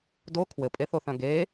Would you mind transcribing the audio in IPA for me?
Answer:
d o kʰ w ɘ pʼ e θ o θ œ̃ ɡ e

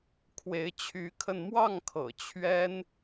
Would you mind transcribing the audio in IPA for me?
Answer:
kʰ w e˨˦ ɪ̯ t͡ɕʰ y˨˦ kʰ ə˧ n m w ɑ˥˨ ŋ kʰ ɤ̰˨˩ t͡ɕʰ ɥ ɛ˦ n

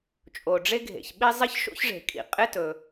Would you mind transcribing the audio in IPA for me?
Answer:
t͡ʃʼ o˩ ɖ͡ʐ e˥ ɡʱ ḛ˩ ç ɓ i˥ zˤ ɪ˥ ç ʃ o̰˥ ç ʐ e̤˩ kʼ ḭ˩ qʼ ɪ˥ t ɵ˩

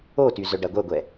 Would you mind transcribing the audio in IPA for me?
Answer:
o t y z œ ɖ æ ɡʷ œ ɡʷ ɛ

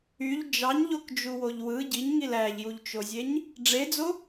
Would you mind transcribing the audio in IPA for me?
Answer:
y ʎ d͡ʒ ɑ ɲ ʎ o k d͡ʒ u w o ʎ w ɯ ɟ i ɲ ŋ i l æ ʎ j u ʎ t͡ʃ o zʲ e ɲ | ɖ͡ʐ e d͡z o

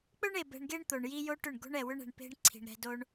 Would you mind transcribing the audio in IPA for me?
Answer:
k͡p ɵ˦ ɳ e˨ b ɛ̤˧ ɳ ɡ e˦ ɳ t̪ o˨ ɳ j i˦ j o˦ ʈ ʏ˦˨ ɳ ɡ o̤˦ ɳ ɛ˨ w ʏ˦ ɳ ɛ̤˨ ɳ p e̤˦ ɳ ǀʰ i̤˨ ɳ ɾ ɛ̤˧ d o˧ ɳ

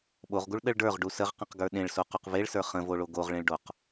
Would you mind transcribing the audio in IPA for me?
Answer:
ɓ o ʁ ɡ u ɭ ɗ ə ɭ ɖ ə˞ ʁ ɖ u s ə ʁ q ə̃ q ɡ ə˞ ɗ ẽ ɭ s o q u q v e ɭ s ə˞ χ ə̃ v o ɭ o ɡ o ʁ ɭ ẽ ɭ ɖ o q

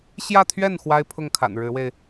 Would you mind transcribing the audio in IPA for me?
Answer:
ɕ j ä˥˧ t̪ʰ ɥ ɛ˥˩ n x w a˥ ɪ̯ pʰ ʊ˥˩ ŋ kʰ a̰˨˩ n ɻ ɻ̩˧˥ w e˧ ɪ̯

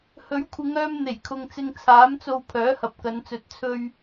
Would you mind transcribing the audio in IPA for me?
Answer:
h ɵ˨˥ ɥ kʷʰ ɪ˨˧ ŋ œː˧ m n̪ e˨˩ j kʰ ʊ˨ ŋ t͡s ɪ˧ ŋ t͡sʰ aː˨˥ m t͡s o˧ w pʰ œː˨˥ h ɐ˨ p̚ k ɐ˨˧ n t͡s ɵ˨˥ t̚ t͡sʰ ɵ˧ ɥ

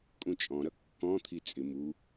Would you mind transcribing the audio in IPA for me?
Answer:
kʼ ũ t͡ʃʼ ɔ̃ ɾ ʌ kː ɔ̃ t̪ʰ i t͡sʼ ɪ m u

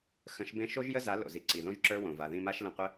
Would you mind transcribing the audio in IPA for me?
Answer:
x ə̃˨˦ ʃ b ẽ˦ ʃ o˦ ʒ j ə˦ z a˨˦ l o̰˨ z i˨ ǀ i˨ ð õ˦ ʒ ǁ ə˞˦ w õ˨ v a˨ ð ĩ˧ m a˦ ʃ l ə̃˧ qʷ ə˦

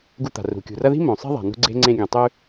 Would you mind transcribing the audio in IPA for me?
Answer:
ɡ u˨ t̪ a̤˩ r ṳ˩ kʲ ṳ˩ r ɐ˦ ð i̤˥ m õ˩ sˤ e̤˥ ðˤ a̤˩ n ṳ˦ ɡ͡ǀ e̤˦ ŋ͡ǀ ẽ˥ ɡʲ ã˨ tˤ ʉ˥

